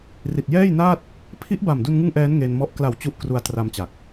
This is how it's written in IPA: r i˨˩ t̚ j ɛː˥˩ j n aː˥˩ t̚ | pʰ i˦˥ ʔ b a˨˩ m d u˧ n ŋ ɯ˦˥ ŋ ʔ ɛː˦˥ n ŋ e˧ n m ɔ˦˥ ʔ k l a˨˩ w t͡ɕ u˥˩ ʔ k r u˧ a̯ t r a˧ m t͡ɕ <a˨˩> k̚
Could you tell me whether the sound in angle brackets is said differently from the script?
no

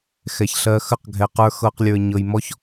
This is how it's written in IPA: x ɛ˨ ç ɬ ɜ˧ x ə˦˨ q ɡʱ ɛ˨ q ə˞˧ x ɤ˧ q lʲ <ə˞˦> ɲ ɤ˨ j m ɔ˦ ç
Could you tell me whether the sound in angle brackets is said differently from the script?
yes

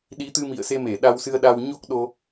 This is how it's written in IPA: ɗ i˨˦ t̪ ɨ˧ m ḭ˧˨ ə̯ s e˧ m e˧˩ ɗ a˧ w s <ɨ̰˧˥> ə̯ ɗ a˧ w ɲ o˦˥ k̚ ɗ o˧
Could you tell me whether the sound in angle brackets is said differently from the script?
yes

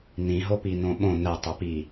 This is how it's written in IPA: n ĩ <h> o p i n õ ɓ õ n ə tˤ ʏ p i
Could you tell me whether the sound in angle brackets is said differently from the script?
yes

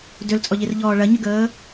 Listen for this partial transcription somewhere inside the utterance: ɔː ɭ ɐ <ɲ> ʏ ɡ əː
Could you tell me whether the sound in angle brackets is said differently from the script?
no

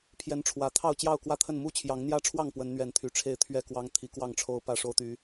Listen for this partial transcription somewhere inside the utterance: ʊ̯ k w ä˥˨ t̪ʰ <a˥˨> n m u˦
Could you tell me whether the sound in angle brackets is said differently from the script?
yes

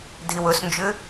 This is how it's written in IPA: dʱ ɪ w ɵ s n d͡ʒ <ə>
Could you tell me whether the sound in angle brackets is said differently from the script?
yes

